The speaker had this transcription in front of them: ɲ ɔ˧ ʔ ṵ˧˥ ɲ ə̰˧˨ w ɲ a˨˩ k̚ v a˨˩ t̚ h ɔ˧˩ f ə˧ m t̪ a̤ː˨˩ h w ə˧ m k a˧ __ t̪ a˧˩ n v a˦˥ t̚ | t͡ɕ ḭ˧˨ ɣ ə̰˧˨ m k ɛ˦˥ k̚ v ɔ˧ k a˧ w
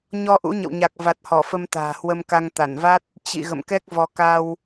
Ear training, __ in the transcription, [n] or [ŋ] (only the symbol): ŋ